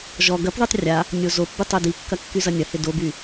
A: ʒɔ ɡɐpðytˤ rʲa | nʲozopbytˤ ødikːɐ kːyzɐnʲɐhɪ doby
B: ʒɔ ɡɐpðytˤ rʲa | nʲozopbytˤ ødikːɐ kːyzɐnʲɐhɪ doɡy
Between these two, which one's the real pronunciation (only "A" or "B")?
A